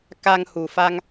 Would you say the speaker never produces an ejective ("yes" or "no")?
yes